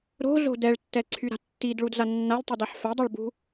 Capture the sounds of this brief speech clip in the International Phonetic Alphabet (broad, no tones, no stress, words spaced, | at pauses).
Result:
ɾo̤zo̤ dɛɭtːɛǀʰy ɾa̤tːidɭudza nːalʲtˤidaħ fɛdˤoɭbṳ